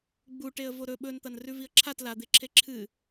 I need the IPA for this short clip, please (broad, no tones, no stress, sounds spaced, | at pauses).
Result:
ɡ͡b u ʈ e ə̯ v o ɾ ɵ ɓ ɵ n t̪ ɐ n r ʉ v i ə̯ ǁʰ a t l a d̪ e ǁʰ e ǁʰ ɨ